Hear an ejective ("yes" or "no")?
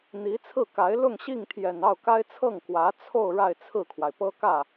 no